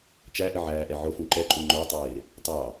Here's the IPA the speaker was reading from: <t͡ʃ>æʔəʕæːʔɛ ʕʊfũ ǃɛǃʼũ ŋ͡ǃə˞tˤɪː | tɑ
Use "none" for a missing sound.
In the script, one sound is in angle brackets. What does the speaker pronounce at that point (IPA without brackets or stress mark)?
t͡ʃ